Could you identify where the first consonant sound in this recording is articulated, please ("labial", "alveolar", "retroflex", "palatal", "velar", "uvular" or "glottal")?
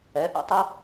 glottal